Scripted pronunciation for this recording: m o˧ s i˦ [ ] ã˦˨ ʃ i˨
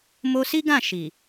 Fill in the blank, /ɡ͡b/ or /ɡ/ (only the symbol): ɡ